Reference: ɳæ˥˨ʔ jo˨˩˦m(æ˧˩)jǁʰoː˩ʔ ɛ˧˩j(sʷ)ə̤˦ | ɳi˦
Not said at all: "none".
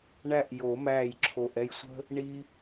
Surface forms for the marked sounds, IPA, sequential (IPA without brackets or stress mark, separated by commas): æː˧˩, sʷ